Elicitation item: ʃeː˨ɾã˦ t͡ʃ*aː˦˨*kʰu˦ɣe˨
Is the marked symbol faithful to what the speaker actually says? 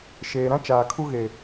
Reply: no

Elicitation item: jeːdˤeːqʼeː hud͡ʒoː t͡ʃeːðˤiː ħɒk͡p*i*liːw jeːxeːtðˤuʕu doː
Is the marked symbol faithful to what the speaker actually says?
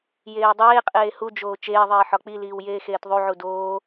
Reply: yes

